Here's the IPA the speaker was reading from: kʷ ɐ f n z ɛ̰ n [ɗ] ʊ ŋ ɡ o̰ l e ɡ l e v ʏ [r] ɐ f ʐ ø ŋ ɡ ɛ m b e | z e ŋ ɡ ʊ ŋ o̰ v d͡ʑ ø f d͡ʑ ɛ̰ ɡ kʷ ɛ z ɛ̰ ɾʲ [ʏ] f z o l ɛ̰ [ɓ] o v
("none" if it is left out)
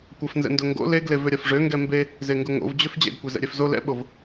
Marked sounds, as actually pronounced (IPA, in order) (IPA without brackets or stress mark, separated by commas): d, ɾʲ, ɛ, ɓ